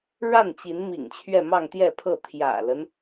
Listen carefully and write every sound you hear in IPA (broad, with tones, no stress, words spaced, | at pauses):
ɻa˥˩nt͡ɕi˧˥nmḭ˨˩ŋ t͡ɕʰɥɛ˥˧mɑ˥˧ŋt̪jɛ˥˧pʰɤ˥˩ t̪ʰjä̰˨˩lə˦n